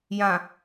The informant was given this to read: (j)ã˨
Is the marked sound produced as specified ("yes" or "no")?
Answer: yes